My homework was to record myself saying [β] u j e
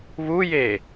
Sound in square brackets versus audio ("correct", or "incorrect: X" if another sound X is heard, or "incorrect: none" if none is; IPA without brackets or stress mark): correct